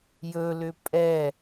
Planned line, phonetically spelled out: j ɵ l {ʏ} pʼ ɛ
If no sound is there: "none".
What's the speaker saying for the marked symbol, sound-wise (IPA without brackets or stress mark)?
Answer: ʏ